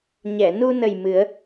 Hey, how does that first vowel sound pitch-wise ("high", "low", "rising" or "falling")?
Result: low